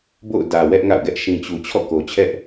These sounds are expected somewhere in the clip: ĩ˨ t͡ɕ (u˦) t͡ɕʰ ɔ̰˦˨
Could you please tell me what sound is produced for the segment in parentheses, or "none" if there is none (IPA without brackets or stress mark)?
u˨